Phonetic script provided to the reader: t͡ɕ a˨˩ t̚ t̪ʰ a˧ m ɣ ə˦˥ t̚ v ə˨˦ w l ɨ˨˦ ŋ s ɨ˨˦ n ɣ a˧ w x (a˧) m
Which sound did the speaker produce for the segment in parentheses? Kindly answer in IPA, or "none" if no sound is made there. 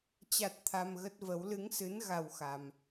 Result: a˧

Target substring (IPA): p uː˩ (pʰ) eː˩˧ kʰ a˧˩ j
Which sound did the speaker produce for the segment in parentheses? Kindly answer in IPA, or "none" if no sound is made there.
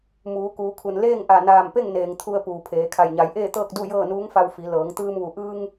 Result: pʰ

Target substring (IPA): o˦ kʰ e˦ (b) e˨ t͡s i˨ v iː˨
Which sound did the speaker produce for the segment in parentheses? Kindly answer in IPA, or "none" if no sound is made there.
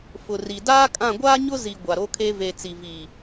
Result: v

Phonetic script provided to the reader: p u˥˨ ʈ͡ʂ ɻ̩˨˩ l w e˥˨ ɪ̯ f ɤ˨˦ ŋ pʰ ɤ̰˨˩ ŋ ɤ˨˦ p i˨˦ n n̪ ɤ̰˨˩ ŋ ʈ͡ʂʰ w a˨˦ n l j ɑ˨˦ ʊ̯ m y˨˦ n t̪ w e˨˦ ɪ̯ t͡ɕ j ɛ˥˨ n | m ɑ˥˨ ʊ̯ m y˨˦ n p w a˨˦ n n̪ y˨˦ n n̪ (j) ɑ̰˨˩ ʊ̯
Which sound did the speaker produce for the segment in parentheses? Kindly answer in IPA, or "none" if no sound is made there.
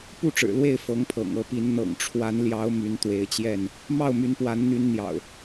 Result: j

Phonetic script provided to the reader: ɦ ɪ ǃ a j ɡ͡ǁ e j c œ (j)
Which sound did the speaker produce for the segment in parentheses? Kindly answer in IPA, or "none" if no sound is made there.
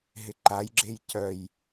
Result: j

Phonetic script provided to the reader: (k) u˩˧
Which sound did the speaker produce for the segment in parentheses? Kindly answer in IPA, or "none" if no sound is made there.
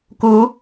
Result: k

